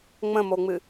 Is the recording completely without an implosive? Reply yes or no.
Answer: yes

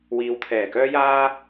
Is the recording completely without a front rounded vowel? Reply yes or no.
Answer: no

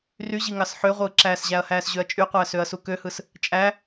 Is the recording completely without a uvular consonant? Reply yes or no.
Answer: no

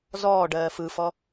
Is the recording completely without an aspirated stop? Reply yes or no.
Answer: yes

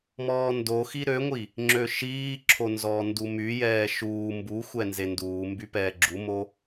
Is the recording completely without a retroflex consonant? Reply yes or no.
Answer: yes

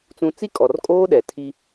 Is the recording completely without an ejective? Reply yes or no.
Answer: no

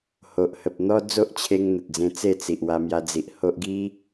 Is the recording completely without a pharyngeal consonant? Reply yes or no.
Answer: yes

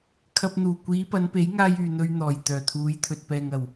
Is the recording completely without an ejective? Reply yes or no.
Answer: yes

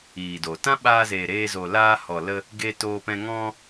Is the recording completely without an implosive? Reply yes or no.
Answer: no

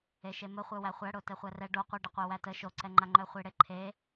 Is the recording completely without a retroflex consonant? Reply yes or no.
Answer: no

